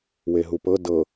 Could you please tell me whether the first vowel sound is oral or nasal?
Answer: oral